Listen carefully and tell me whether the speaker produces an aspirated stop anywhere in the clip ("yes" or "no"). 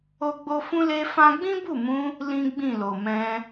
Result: no